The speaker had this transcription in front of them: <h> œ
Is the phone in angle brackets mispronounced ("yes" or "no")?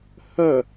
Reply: no